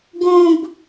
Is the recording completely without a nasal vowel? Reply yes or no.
no